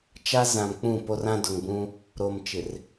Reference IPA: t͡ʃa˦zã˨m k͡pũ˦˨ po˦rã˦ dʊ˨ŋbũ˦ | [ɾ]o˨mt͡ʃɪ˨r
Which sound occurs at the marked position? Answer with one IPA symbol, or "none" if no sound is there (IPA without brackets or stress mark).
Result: ɾ